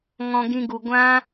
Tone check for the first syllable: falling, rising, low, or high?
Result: low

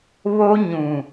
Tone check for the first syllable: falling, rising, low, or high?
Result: high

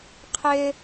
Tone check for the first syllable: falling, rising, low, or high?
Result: high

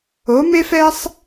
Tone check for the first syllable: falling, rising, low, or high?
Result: rising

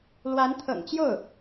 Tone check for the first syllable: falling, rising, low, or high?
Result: rising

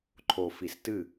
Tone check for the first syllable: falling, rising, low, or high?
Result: low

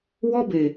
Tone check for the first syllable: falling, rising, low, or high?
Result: high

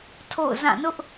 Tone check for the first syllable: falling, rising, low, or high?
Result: falling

